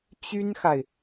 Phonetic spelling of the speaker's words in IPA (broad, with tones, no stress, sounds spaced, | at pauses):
t͡ɕ y˥ n x a˨ ɪ̯